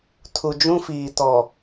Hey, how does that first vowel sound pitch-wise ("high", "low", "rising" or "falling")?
low